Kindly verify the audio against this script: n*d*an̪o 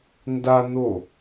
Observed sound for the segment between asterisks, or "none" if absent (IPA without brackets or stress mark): d